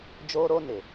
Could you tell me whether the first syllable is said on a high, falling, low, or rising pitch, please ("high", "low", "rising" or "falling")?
high